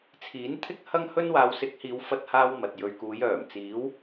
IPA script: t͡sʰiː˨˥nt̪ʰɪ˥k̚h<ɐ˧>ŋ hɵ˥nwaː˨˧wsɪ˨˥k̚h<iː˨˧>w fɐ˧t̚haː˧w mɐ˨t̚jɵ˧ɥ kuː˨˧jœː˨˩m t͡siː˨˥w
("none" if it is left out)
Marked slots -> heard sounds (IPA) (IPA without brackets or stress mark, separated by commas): ɐ˥, iː˨˧